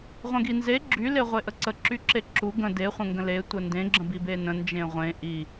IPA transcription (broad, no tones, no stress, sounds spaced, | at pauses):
ʁʷ ə̃ ɡ i n z e ɡ͡ǁ y l e ʁʷ e ʔ ə ǀ ə ǁ y ǁ e ǁ u ɡ ə̃ d e χʷ ə̃ ŋ ɡ ə̃ l e tʷ ə n d ẽ ɡ͡ǁ ə̃ b i b e n ə̃ n d͡ʒ ẽ ʁʷ ẽ ʔ i